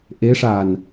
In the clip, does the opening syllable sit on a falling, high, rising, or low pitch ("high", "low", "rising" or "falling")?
rising